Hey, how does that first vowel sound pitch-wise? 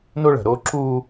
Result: high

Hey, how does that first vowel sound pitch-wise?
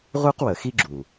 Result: high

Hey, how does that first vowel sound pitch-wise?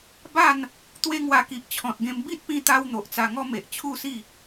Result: falling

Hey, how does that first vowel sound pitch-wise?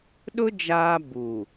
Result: high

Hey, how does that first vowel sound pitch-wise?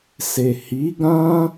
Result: low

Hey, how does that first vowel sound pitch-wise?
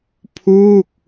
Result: falling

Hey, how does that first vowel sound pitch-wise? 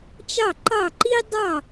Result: falling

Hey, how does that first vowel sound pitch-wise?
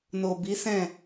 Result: low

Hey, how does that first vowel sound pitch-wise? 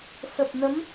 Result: low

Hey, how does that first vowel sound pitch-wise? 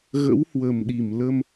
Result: rising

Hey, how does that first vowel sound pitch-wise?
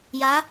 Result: rising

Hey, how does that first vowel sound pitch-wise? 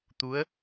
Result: rising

